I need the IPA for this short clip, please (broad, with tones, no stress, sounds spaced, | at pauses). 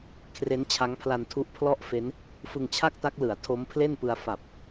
kʰ r e˦˥ n t͡ɕʰ a˦˥ ŋ pʰ l a˧ n tʰ u˦˥ ʔ pʰ l ɔ˥˩ ʔ f e˦˥ n | f ɯ˧ ŋ t͡ɕʰ a˥˩ k̚ t a˦˥ k̚ l ɯ˩˦ a̯ tʰ o˦˥ m pʰ l e˥˩ n p ɯ˧ a̯ f a˨˩ p̚